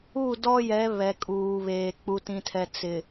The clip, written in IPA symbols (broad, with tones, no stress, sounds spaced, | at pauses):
u˦˨ d ɔ˦ j ɛ˨˦ β ɛ˨ kʼ uː˨ β eː˨ k͡p u˨ t ĩ˨ tʰ ɛ˨ t͡s ɪ˨